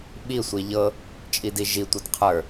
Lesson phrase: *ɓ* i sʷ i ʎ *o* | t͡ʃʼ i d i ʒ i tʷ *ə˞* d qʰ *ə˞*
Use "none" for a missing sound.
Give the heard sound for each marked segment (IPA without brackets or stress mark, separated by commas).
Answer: ɓ, ɤ, ɤ, ə˞